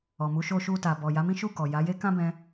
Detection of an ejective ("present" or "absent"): absent